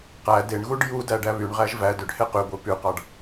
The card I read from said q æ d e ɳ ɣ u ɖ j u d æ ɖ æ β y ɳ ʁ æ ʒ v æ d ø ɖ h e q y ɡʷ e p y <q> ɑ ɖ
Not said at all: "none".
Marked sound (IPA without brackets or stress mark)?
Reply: q